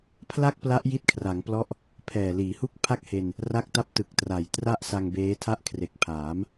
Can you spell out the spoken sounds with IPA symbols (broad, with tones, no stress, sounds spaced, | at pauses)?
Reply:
pʰ l a˥˩ k̚ p l a˦˥ ʔ j i˦˥ t̚ kʰ r a˩˦ ŋ p l ɔ˦˥ ʔ | pʰ ɛː˨˩ l iː˩˦ h u˦˥ k̚ pʰ a˥˩ k̚ h e˧ n | r a˦˥ k̚ t a˦˥ p̚ t ɯ˨˩ k̚ t r a˨˩ j t r a˥˩ ʔ s a˧ ŋ b eː˦˥ tʰ a˥˩ ʔ kʰ r e˨˩ k̚ pʰ aː˩˦ m